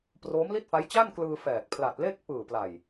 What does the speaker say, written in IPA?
p r oː˦˥ m l i˥˩ t̚ f a˦˥ j t͡ɕ a˥˩ n k l ɯː˧ f ɛː˨˩ k̚ pʰ l a˨˩ t̚ l e˥˩ k̚ p ɯː˨˩ p l a˨˩ j

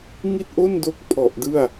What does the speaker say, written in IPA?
ŋ i˥˩ t̚ ʔ o˥˩ n d o˦˥ k̚ pʰ ɔ˨˩ ʔ d ɯ˥˩ a̯

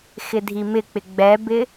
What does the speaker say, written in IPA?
x ɪ dʱ i m ɪ k͡p ɪ ɡ͡b ɛ b ɪ

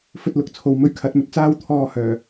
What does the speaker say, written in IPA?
f ɵ˧ t̚ l ʊ˨˥ k̚ t͡sʰ o˨ w m ɵ˧ ɥ kʰ ɐ˨˥ t̚ m ɵ˨ t̚ t͡s aː˥ w t̪ʰ ɔː˧ h œː˨˩

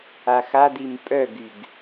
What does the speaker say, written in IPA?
a x a d̪ i m pʼ œ ɡ y ɡ

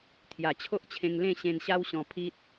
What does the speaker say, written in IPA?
t̪ʰ j a˨˩ t͡ɕʰ o˦ ʔ t͡ɕʰ ẽ˧ ŋ l ẽ˥˧ ɕ ẽ˧ n ɕ a˦ w ɕ ɔ̃˧ pʰ i˦ t̚

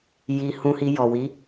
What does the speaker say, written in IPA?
j i˧ h ũ˧ h i˧ j ɔ˨ w i˨˦

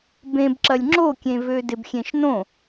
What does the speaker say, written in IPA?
b ẽ b ǁ ɐ lʲ ŋ͡ǁ o kʲ ẽ v ø d ɪ b xʲ ẽ ʃ n õ

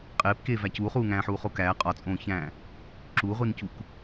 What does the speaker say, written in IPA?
qʼ eː p k eː v æ c uː χ uː ŋ æ̃ː ħ uː χ o k æː qʼ ɒ t͡sʼ õː ç æ̃ː | ǁ u ʁʷ i n c u k

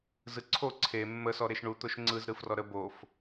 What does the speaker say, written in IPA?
z ɯ ǀʰ o ǀʰ e mː ə s ɔ ɾ e ʃ ɳ u t̪ o ʃ ŋ͡ǀ ɯ z ɾ ɯ f r ɔ ɾ ə b o f

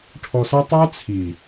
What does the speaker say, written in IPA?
ʈʰ ɔ˨ s a˦ tˤ a˦ t͡sʰ i˨

